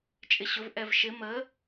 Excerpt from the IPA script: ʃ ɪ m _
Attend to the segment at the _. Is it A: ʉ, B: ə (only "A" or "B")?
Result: B